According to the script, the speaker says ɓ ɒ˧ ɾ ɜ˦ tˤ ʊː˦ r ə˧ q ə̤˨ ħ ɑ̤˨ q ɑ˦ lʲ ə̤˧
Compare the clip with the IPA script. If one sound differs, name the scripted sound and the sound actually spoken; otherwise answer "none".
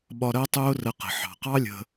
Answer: none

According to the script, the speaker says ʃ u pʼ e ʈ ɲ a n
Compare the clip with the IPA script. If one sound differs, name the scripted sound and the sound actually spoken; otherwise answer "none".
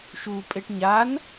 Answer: none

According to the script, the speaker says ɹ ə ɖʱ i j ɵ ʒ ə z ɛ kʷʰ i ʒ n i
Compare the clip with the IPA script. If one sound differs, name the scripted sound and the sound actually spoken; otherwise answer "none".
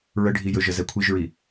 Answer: n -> ɹ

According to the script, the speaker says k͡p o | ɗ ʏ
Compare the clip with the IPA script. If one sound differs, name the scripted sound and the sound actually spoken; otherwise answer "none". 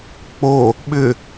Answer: ɗ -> ɓ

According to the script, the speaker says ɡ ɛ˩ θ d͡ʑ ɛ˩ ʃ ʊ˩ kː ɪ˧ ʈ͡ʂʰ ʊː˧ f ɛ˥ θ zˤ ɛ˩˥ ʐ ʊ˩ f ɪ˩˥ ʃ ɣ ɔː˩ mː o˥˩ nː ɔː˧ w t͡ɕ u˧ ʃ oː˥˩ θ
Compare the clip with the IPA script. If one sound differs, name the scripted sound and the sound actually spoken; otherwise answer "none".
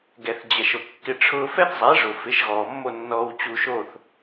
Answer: none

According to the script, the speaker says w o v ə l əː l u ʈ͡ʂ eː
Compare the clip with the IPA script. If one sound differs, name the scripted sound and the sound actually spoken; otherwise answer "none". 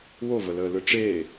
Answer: u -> ɯ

